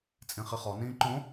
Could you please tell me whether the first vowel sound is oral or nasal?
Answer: nasal